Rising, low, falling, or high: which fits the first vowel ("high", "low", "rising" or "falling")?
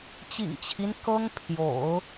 low